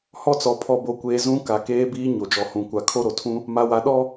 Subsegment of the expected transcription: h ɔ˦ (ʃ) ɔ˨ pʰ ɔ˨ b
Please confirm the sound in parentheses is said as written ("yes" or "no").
no